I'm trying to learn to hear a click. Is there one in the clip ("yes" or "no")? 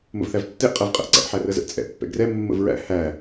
yes